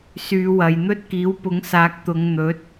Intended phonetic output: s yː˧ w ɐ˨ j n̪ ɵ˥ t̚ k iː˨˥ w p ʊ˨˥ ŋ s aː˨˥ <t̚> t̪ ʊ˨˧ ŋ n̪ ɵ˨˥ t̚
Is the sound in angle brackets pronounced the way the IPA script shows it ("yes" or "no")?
no